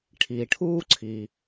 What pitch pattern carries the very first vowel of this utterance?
low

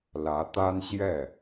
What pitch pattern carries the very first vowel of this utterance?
rising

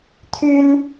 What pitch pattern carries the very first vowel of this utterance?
high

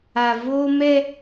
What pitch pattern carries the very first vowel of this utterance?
low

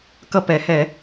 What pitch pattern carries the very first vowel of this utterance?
falling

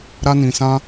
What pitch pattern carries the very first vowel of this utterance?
high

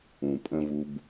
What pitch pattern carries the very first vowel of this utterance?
low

